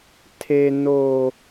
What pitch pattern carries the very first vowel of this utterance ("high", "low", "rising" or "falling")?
high